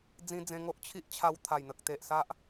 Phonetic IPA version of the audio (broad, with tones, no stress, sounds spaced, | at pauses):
d͡z ĩ˧ d͡z ẽ˧ ŋ o˦ ʔ t͡ɕʰ i˦ ʔ t͡ɕʰ a˧ w t̪ʰ a˨˩ j n̪ ə˨ k̚ t̪ e˨ ʔ s a˦ ʔ